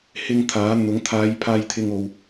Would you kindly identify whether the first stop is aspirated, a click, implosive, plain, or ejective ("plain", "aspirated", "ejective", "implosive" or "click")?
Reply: aspirated